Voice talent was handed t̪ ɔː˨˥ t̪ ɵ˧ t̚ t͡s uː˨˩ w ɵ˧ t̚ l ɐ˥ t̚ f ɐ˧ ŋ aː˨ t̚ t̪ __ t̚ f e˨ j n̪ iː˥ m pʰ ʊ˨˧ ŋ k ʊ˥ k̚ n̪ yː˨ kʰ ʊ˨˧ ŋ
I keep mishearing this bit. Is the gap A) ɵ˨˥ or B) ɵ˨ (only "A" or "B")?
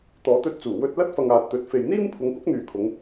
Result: A